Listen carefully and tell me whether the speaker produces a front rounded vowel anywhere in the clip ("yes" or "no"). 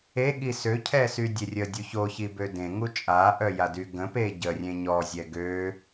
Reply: yes